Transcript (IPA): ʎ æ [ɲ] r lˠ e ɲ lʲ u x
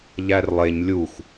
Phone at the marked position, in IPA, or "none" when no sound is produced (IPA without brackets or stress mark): none